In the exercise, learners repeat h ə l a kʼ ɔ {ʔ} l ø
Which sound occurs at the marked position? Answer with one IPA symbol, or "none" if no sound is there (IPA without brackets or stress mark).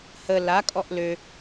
ʔ